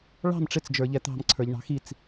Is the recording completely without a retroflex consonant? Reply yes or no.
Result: no